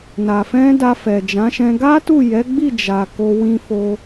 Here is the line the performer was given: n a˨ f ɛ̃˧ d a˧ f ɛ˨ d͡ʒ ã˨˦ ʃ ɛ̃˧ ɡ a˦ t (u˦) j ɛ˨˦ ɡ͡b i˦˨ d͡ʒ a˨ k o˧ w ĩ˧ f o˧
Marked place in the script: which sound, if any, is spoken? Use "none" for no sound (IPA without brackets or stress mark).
u˦˨